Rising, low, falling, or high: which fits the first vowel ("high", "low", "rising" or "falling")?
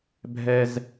low